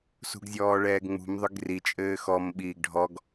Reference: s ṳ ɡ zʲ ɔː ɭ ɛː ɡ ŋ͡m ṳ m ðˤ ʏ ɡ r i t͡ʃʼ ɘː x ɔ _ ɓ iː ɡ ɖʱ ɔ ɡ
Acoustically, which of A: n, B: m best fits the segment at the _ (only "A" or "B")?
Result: B